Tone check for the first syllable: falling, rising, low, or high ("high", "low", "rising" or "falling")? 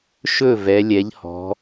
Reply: falling